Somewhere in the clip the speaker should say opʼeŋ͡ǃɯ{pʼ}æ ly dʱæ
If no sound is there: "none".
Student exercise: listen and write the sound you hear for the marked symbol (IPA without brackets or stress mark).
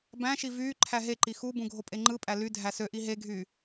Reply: pʼ